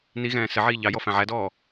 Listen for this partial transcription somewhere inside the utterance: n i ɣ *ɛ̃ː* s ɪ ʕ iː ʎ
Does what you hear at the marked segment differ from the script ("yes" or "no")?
no